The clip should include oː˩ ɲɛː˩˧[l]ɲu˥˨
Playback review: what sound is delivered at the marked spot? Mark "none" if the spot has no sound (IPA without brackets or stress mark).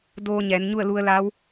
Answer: n